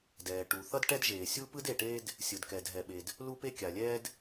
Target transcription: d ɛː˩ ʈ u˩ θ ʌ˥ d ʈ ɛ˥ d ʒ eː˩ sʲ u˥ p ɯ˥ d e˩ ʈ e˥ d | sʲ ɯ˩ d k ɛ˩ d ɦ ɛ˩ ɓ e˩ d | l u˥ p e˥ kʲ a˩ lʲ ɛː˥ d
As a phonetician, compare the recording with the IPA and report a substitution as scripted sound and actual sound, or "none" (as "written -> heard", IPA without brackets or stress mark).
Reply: none